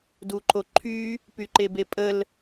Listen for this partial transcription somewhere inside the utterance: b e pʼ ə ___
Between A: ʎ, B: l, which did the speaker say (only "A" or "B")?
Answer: B